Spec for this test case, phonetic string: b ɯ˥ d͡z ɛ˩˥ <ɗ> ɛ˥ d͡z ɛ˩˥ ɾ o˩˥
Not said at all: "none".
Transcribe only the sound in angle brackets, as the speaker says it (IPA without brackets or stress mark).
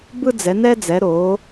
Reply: n